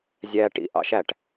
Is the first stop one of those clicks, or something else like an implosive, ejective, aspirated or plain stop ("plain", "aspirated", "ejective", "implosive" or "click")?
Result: plain